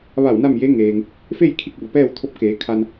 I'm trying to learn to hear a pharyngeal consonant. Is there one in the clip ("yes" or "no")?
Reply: no